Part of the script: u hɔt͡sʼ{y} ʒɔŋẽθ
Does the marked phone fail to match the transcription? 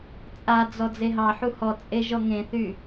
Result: yes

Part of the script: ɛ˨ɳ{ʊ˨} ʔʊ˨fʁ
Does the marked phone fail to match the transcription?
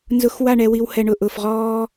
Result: no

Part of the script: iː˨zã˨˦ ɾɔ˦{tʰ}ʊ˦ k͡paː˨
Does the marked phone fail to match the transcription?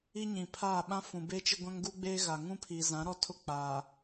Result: no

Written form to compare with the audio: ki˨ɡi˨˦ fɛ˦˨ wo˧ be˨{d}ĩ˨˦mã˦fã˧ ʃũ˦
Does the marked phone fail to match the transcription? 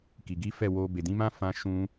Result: no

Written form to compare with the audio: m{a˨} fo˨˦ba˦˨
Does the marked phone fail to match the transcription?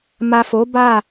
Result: no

